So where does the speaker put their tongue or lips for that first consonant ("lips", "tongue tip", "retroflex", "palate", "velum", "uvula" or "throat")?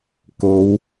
velum